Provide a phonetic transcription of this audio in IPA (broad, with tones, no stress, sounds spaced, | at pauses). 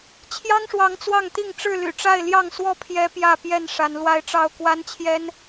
t͡ɕʰ j ɑ˦ ŋ ʂ w ɑ˨˦ ŋ t͡s w ɑ˥˨ ŋ t̪ i˥˨ ŋ ʈ͡ʂ ɻ̩˥˨ l y̰˨˩ ʈ͡ʂ a˥˨ ɪ̯ l j ɑ˥˨ ŋ s w ɔ˥˨ pʰ j ɛ˦ p j ä˥˨ p j ɛ˥˨ n ʂ a˨˦ n l w a˦ ɪ̯ ʈ͡ʂ ɑ˥˨ ʊ̯ k w a˦ n t͡ɕʰ j ɛ˦ n